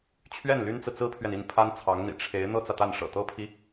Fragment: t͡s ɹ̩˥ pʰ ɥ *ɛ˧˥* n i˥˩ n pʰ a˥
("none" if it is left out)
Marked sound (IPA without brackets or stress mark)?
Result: ɛ˨